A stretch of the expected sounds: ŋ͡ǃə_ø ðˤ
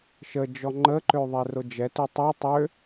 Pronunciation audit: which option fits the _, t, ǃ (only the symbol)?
ǃ